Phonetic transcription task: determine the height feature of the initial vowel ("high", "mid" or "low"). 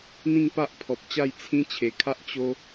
high